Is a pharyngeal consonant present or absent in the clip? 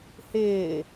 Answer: absent